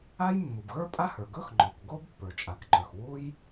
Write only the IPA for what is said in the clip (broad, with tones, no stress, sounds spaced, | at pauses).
a˥ j mː u˩ b ɣ ə˞˥ pʼ a˥ h ə˞˩ ɡ ɵ˥ x ŋ͡ǃ ɔ˩ k ɡ o˥ b pː ə˞˩ t͡ʃʼ a˩ k ǃ ə˞˩ x w u˥ j